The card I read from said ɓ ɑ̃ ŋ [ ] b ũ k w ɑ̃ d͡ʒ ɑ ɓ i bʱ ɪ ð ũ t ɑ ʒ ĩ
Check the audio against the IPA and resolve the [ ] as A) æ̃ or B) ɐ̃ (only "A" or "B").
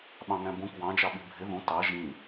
A